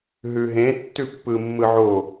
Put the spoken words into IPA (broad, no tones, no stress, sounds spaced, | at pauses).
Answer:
ɦ ʉ ɦ ẽ tː ʉ pː ɯ mː ɯ ʕ o